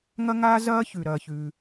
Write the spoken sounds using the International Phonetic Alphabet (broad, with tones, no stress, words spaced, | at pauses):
ŋɐ˥ŋaː˥zɐː˥ çʉ˩ ɾɐː˩çʉː˩